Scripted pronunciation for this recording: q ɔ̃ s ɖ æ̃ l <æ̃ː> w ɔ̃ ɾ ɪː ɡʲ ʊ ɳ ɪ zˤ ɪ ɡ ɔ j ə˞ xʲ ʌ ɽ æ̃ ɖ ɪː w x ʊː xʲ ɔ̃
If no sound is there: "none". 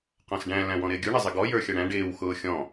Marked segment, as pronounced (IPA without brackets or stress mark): æ̃